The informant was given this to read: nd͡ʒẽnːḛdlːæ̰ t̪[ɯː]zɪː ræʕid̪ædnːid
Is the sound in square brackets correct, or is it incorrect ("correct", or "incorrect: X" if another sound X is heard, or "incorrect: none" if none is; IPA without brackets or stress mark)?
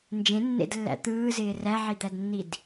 correct